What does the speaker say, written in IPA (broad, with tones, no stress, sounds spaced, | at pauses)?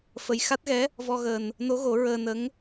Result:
f ə˧ j x a˦˥ t̚ ɣ ɛ˧˥ | v ɔ˧ ɣ əː˨˩ n | n o˧˥ ɣ o˨˩˦ ɹ əː˧ n ə˧˥ ŋ